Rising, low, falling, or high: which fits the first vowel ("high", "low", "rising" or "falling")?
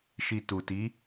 low